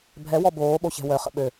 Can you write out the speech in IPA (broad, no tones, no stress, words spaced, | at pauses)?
bʱɛwɔ boːɓoçɛ̤ wœχə̰ ɓø